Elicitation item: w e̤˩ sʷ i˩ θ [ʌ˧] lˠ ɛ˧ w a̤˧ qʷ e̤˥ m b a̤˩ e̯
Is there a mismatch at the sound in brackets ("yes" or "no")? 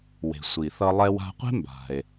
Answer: no